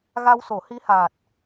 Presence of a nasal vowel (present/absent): absent